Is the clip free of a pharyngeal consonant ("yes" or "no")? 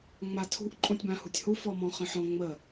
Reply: no